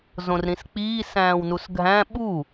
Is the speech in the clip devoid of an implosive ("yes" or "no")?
no